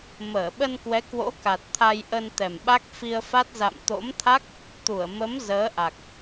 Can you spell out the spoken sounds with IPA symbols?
m əː˧˩ ɓ ə˧ n k w ɛ˨˦ k w o̰˧˥ k a˨˩ t̚ t̪ʰ a˧ j ʔ ə˧ n t̪ ɛ˨˩ m ɓ a˦˥ k̚ f i˧ ə̯ f a˦˥ t̚ z a̰˧˨ m t̪ o̰˧˥ m t̪ʰ a˦˥ k̚ | t̪ u˧˩ ə̯ m ə˨˦ m z əː˨˦ ʔ a˨˩ k̚

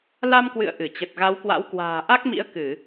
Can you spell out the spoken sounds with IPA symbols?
l a˧ m k w ɨ̰˧˨ ə̯ ʔ ɨ˧˩ t͡ɕ ə˨˩ t̚ ɣ a˨˦ w k w a̰˧˥ w k w a̤ː˨˩ ʔ a˦˥ k̚ m ḭ˧˥ ə̯ k ɨ˧˩˨

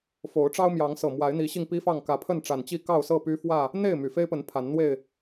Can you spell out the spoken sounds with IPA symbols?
f o˨˦ ʊ̯ ʈ͡ʂ ɑ˦ ʊ̯ m j ɑ˨˦ ŋ s ɤ˨˩ m w a˨˦ ɪ̯ n̪ i˨˦ ɕ i˧ ŋ p i˦ f ɑ˥˨ ŋ k ä˨˦ pʰ ə˥˨ n ʈ͡ʂ a˨˩ n t͡ɕ i˥˨ k ɑ˥˨ ʊ̯ s ɤ˥˨ p y˦ f w ä˥˨ | n̪ e˥˨ ɪ̯ m y˨˩ f e˦ ɪ̯ p ə˨˦ n pʰ a˨˦ n n̪ w e˥˨ ɪ̯

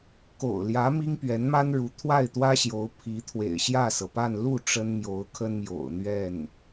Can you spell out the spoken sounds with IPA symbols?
k o̰˨˩ ʊ̯ l j ä˧˥ m i˥ ŋ p ɥ ɛ˧˥ n m a˥ n ɻ u˧˥ t̪ʰ w a˥˩ ɪ̯ t̪ w ä˥ ɕ j o˧˥ ʊ̯ pʰ i˧˥ t̪ʰ w ḛ˨˩ ɪ̯ ɕ j ä˥˩ s ɤ˩ p a˥˧ n l u˥˩ ʈ͡ʂ ə˥ n m j o˧˥ ʊ̯ kʰ ə˥ n m j o̰˨˩ ʊ̯ n̪ ɥ ɛ˥˩ n

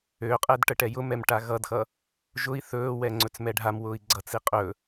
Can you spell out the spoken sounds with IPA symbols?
ø qʼ ɛ d ʈ ə ʈ ɛ j ʊ m ɛ m ʈ a ɣ ʌ d x ʌ | ʒ ʊ i̯ θ ɵː w ɛ ŋ͡ǀ ɵ t͡s m ɛ ɖʱ a m w ʊː i̯ ɡ͡ǀ ʌ t͡s i qʼ ɵ

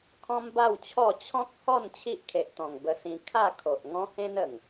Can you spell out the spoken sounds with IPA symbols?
kʰ ɔ̃˦ m b a˥˧ w t͡ɕʰ ɔ˥˧ t͡ɕʰ ɔ̃˦ k̚ h ɔ˥˧ n t͡ɕʰ i˦ ʔ kʰ e˨ ʔ t̪ ɔ̃˨˩ ŋ b ə˧ s ĩ˧ kʰ a˥˧ kʰ o˨ ʔ ŋ ɔ̃˦ h ẽ˦ n ə˨˩ ŋ

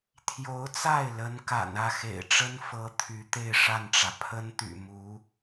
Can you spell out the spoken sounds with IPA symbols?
t̪ʰ j o˧˥ ʊ̯ t͡s a˥˩ ɪ̯ l ə˧˥ n k a̰˨˩ n ä˥˩ x ḛ˨˩ ɪ̯ ʈ͡ʂ ə˥ n f ɤ˧˥ t̪ʰ y˧˥ t̪ e˥˧ ɪ̯ ʂ a˥˩ n ʈ͡ʂ ä˩ pʰ ə˥ n t̪ y̰˨˩ m u˧˥

